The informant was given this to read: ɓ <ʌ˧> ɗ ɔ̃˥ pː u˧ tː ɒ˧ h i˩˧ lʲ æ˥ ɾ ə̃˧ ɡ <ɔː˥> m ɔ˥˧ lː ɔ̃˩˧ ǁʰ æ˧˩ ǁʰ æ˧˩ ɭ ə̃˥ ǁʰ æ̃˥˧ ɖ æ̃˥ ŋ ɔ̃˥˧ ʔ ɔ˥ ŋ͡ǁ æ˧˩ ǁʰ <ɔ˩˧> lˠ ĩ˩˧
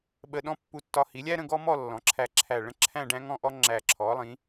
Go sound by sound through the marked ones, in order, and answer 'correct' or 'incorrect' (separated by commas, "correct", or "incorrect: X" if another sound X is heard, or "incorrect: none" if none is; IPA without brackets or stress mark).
incorrect: ə˧, incorrect: ɔ˥, correct